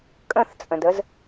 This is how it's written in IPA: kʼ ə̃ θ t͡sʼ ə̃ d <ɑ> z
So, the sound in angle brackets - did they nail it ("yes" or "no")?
no